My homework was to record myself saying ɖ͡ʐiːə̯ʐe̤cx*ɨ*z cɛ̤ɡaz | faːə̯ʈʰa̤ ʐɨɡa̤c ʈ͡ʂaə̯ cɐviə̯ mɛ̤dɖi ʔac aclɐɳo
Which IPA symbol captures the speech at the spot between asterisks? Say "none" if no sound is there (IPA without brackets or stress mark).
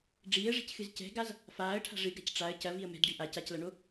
ɨ